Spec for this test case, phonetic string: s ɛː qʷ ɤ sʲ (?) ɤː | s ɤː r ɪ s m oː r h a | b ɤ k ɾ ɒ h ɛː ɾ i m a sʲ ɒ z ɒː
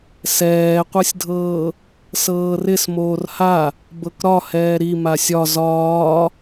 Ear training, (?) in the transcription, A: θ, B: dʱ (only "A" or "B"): B